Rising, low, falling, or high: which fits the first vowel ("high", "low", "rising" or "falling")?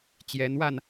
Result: rising